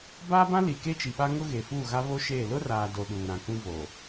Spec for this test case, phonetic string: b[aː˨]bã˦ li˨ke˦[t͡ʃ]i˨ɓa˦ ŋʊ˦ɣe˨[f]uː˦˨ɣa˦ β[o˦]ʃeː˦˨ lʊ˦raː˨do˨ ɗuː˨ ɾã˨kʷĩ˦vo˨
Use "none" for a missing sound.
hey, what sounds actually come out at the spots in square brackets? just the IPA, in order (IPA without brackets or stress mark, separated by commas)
aː˦, t͡ʃ, f, o˦